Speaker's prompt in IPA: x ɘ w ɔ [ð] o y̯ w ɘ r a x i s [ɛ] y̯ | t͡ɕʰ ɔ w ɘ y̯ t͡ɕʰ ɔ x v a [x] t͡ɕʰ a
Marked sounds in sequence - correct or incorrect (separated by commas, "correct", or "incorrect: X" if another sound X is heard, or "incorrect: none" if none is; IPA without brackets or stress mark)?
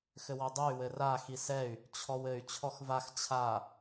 incorrect: dˤ, correct, correct